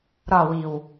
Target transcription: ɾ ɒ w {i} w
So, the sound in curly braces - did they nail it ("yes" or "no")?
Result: yes